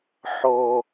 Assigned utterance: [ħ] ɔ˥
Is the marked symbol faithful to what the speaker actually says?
yes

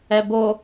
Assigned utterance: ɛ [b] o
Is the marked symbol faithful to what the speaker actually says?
yes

